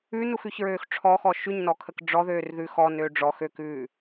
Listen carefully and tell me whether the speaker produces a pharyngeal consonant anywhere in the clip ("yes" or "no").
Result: no